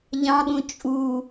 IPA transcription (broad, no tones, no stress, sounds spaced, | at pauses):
ʎ ɑ̃ ɠ ũ t͡ʃʼ u